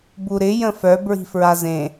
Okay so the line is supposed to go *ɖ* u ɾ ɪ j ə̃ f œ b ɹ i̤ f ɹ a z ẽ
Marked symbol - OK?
no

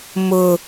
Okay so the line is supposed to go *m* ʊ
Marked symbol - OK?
yes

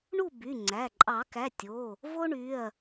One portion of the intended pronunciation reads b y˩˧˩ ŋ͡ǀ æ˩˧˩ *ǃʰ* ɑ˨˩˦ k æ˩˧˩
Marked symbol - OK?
no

